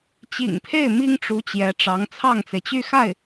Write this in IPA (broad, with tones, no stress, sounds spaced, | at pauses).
t͡ɕ ḭ˨˩ ŋ pʰ e˥˩ ɪ̯ m i˥ ŋ ʈ͡ʂ u˧˥ t͡ɕ j ɛ˧˥ ʈ͡ʂ ɑ˧˥ ŋ t͡sʰ ɑ˥˩ ŋ t͡s e˩ ɪ̯ t͡ɕ y˥˧ x a˥˩ ɪ̯